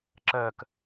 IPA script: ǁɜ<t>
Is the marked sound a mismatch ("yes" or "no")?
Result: yes